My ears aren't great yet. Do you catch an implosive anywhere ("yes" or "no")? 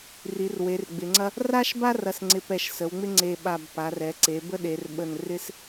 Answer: yes